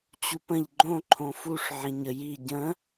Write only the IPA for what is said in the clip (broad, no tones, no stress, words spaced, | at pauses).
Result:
t͡ɕupə̃ʎ ɡ͡ǃõ ǃʰõfuʂ ʕĩɲə ji ɟə̃